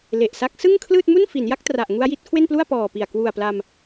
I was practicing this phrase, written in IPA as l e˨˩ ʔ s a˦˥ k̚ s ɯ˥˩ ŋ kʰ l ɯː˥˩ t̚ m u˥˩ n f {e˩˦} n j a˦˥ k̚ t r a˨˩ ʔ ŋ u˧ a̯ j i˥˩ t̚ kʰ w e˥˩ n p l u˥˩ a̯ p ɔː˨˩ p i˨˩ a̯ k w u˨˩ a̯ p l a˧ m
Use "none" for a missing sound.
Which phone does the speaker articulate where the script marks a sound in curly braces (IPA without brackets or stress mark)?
i˩˦